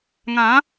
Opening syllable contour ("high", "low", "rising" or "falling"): rising